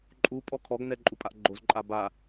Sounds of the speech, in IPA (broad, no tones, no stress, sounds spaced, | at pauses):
ǃʼ u pʼ ɔ kʰ ɔ ɡ n ɛ ǃʼ u pʼ a ʔ ɡ͡ǃ o z ǃʼ a b a